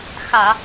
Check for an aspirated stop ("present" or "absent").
absent